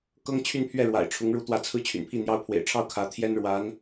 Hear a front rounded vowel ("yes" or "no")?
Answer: yes